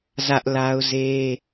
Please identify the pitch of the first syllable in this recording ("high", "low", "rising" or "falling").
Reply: high